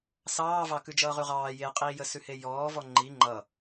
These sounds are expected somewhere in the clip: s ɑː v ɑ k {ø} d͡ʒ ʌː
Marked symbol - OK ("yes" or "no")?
no